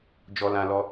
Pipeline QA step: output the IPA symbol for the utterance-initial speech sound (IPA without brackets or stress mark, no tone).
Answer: d͡ʒ